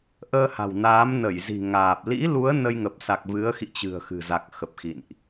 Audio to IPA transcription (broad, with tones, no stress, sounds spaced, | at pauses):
ʔ əː˧ h a̤˨˩ w n aː˨˦ m n ə˧˩ j z i̤˨˩ ŋ aː˨˩ p̚ l ḭ˧˥ l u˨˦ ə̯ n ə˧ j ŋ ə˨˩ p̚ s a˨˩ k̚ v ɨ˨˦ ə̯ x ḭ˧˨ t͡ɕ ɨ̤˨˩ ə̯ x ɨ̤˨˩ z a˨˩ k̚ x ə˨˩ p̚ x ḭ˧˨ n ʔ